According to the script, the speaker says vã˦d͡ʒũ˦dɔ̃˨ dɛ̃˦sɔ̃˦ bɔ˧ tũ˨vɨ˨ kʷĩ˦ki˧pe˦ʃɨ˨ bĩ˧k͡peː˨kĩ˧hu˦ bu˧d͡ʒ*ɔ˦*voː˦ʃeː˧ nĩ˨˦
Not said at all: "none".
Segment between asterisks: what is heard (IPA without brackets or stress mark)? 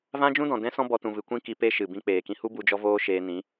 ɔ˦